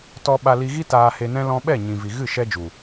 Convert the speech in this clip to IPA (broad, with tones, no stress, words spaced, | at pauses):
tɔ˧ ɓa˧li˧ɣi˦ taː˧he˧nɛ̃˦ lɔ̃˧ɓɛ˦˨ ɲĩ˨vi˨ɣɨ˦˨ ʃɛ˦d͡ʒu˨